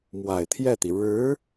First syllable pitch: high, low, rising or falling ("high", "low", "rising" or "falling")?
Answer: low